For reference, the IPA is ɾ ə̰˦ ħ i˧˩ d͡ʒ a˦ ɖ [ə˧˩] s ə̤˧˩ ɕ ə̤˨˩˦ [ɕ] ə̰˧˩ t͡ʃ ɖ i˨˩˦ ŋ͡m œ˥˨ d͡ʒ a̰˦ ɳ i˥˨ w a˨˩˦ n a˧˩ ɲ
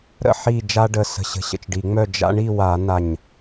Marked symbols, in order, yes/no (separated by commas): yes, yes